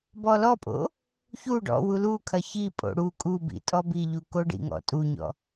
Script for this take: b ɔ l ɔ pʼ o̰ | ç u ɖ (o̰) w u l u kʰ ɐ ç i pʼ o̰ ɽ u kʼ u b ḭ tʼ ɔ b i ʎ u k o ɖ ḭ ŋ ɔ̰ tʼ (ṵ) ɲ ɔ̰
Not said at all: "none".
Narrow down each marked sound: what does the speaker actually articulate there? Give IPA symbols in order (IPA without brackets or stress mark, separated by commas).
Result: ɔ̰, u